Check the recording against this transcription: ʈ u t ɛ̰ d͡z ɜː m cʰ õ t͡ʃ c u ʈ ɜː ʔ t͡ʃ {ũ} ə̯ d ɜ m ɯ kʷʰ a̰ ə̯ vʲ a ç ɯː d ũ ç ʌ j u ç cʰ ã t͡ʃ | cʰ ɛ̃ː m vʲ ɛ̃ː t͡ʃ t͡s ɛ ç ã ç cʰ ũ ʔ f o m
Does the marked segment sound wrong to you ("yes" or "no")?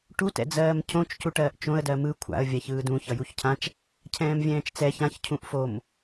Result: yes